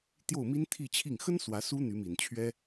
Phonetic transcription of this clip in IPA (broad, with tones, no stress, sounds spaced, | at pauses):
t̪ j o˥˩ ʊ̯ m i˥ n t̪ʰ i˥˧ t͡ɕʰ i˥˩ ŋ x ə˥ n s w ä˧˥ s u˥ n̪ y˧˥ m i˨˩ n t͡ɕʰ ɥ ɛ˥